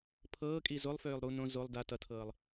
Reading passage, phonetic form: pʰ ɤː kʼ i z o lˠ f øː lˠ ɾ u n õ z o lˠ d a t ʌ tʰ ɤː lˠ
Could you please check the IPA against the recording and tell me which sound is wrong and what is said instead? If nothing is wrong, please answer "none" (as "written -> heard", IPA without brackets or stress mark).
none